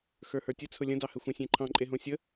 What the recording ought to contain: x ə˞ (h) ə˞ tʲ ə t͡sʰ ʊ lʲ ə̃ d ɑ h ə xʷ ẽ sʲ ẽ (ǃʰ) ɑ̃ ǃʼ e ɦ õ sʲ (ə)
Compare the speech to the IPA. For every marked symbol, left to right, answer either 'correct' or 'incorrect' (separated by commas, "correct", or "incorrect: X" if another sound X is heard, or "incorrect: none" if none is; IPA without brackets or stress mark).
correct, correct, correct